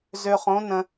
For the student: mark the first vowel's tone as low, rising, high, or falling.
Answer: low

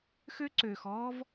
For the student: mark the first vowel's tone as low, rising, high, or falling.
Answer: high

